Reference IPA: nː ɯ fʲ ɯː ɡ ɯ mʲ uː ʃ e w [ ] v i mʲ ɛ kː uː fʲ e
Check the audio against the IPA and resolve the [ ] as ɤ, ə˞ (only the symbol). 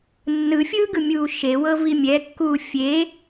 ɤ